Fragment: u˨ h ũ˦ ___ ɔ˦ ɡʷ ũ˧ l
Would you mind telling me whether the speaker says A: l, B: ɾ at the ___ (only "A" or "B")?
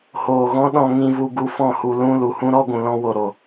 B